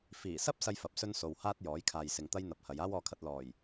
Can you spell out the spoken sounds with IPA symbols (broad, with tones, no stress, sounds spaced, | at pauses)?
f iː˨˩ s ɐ˥ p̚ s ɐ˥ j f ɐ˨˥ p̚ s ɵ˥ n s o˨ w h aː˥ t̚ j ɔː˨˥ j kʰ aː˨ j s ɪ˨ ŋ t̪ ɐ˥ j n̪ ɐ˨ p̚ h ɐ˨˧ j aː˥ w ɔː˧ kʰ ɐ˧ t̚ l ɔː˨˩ j